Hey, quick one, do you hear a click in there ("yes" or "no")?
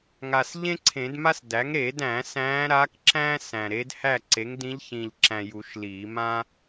yes